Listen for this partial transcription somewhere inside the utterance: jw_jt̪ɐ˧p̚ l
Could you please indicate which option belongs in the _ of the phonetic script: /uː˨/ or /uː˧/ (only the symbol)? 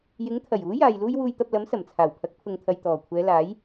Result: uː˧